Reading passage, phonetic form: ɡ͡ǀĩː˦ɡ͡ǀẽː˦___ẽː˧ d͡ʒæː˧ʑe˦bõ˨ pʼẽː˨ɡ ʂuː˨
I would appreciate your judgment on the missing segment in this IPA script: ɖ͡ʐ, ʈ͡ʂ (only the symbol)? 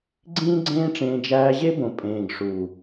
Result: ʈ͡ʂ